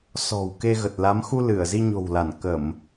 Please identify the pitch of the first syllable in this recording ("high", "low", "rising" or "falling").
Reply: low